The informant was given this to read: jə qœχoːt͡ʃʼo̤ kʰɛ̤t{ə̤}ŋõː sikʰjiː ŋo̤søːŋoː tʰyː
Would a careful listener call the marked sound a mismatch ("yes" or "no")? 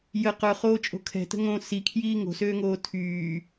no